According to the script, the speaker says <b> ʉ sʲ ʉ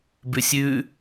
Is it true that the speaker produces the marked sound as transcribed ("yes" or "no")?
yes